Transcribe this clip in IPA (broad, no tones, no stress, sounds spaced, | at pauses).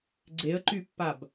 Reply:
ɡ͡ǀ e ə̯ ǃ y pː a b